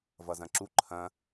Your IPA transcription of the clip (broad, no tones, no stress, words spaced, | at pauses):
vʌzɐ̃ǁu ǃʰɐ̃